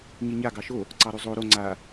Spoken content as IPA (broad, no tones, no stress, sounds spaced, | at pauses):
ɲ i ɲ a ɡ ɑ ʃ o | ǀ ɑ ɾ ʉ zˤ o ɾ o ŋ͡ǀ a